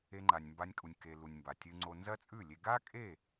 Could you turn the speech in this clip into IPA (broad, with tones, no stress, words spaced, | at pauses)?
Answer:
e˧ŋ͡ǃa˨nʲ mba˧nʲkʼu˨nʲke˨ lu˨nʲ mba˨tʲɨ˧ŋ͡ǀo˧ nzɐ˦t͡sʼʉ˦˨lʲe˧ ɡa˦kʼe˦˨